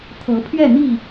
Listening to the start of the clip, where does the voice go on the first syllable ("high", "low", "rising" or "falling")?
rising